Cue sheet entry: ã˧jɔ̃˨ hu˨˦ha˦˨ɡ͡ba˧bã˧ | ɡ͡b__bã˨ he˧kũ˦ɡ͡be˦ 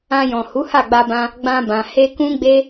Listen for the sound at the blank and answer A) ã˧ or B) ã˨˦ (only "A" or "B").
A